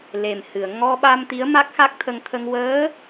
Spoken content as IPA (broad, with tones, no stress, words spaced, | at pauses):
le˨˩mhɨ˨˩˨ə̯ ŋɔ˧ɓa˧m t̪i˧˥ə̯ma˦˥k̚xa˦˥k̚t̪ʰə˧ŋ t̪ʰə˧ŋ wəː˧˥